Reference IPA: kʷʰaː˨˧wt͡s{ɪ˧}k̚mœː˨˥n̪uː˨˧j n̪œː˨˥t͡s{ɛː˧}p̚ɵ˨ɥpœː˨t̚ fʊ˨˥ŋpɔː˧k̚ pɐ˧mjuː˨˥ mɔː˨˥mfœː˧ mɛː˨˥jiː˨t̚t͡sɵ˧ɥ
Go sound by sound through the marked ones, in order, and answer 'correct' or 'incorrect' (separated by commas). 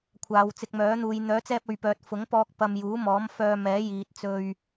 correct, correct